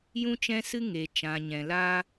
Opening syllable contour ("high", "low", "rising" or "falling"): high